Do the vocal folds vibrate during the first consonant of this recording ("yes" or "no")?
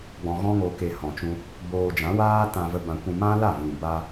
yes